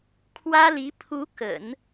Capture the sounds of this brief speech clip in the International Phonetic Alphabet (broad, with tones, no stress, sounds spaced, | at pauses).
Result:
kʰ w ä˥ l i˧˥ pʰ u˧˥ k ə̰˨˩˦ n